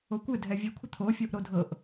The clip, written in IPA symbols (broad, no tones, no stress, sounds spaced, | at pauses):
o kʷ ɘ dʱ ɛ vʲ e kʷʰ ə t̪ʰ o fʲ o ʔ ɾ o dʱ ɤ ʔ